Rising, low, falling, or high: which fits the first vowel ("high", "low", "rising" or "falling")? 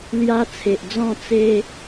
high